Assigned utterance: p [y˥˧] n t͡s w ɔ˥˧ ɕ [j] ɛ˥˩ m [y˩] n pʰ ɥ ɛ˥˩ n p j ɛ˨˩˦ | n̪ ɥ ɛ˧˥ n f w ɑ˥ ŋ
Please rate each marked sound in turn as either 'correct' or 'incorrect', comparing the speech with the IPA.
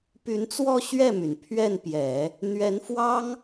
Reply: incorrect: y˧˥, incorrect: ɥ, correct

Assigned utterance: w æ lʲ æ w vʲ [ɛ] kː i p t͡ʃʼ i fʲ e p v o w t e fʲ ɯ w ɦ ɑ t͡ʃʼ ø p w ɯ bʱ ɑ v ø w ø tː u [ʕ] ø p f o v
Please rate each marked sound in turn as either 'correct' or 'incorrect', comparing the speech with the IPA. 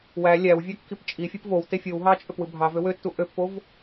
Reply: incorrect: æ, incorrect: ʔ

